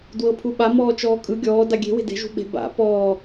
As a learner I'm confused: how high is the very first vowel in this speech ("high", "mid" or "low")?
mid